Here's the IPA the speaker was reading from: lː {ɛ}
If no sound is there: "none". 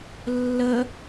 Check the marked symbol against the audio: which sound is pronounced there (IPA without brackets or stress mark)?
ə